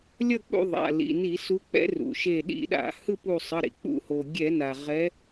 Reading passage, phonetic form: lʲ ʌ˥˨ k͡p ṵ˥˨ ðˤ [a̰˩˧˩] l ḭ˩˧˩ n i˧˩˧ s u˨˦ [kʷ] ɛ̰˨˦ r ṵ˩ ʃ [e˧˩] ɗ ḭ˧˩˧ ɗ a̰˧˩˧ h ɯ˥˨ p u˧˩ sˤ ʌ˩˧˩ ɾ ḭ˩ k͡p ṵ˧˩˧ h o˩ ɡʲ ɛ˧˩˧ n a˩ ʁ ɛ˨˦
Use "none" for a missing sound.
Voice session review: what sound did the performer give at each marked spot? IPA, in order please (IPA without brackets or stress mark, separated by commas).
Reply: a̰˩˧˩, k͡p, e˧˩